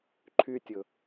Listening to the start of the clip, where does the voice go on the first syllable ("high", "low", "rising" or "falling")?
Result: high